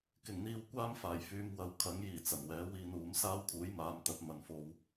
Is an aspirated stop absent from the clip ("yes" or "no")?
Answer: no